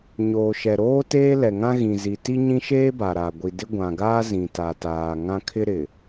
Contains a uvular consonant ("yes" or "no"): no